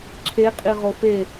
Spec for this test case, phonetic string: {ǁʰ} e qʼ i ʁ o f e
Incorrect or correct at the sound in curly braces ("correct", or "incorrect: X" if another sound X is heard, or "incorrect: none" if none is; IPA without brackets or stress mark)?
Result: correct